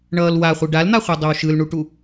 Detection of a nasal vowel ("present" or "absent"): absent